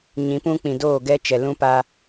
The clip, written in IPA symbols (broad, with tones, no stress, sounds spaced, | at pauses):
ɲ ĩ˨˦ p ũ˦ k͡p ĩ˨ d oː˦˨ ɡ ɛ˦ t͡ʃ ɛ˨ l ũ˦ p a˦